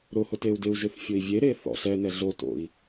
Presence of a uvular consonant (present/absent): absent